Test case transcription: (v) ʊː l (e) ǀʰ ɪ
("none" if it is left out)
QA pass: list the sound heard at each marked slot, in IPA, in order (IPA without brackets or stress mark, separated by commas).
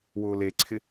w, e